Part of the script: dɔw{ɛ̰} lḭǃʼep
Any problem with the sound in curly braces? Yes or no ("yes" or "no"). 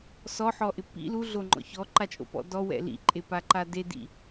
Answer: no